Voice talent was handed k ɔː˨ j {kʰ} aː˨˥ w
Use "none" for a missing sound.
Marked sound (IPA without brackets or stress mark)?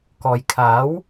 kʰ